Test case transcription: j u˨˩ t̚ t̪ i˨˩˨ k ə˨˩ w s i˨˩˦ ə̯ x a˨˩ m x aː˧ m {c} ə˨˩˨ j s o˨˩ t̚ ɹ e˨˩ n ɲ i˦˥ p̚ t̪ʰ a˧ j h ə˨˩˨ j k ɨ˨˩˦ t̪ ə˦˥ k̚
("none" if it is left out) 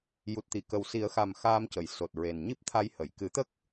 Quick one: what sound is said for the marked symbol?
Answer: c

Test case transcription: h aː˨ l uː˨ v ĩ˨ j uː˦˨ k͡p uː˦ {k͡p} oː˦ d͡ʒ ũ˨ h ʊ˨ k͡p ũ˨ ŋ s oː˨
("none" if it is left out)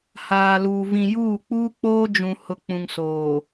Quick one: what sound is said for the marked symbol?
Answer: k͡p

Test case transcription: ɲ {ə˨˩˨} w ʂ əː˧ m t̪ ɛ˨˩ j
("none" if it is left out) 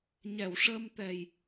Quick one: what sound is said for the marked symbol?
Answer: ɛ˨˩˨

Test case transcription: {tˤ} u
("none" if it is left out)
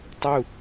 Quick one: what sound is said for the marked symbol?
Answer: tˤ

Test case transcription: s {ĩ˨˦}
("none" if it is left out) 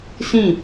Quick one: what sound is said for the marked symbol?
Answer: ĩ˦˨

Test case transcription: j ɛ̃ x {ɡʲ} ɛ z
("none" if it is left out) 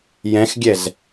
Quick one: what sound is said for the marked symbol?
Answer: ɡʲ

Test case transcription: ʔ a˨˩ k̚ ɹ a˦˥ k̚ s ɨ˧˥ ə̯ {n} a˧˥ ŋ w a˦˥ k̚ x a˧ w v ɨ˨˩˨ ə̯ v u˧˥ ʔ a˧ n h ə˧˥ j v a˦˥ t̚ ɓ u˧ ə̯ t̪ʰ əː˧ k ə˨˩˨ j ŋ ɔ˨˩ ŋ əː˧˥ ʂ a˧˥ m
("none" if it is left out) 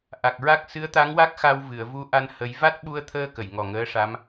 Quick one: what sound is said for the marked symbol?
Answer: t̪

